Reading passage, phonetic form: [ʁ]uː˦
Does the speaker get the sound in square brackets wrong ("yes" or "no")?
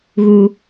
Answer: yes